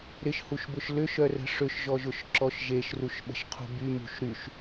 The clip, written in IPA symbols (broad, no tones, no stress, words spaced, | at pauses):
ɾɪʃhuʃbʊʃ lʏʃœrə̤ ʂʏʃʒɔʒʊʃ ǁɔʃʒeʃ ruʃɓə̤ʃqʰṳby mṳʃɾyʃ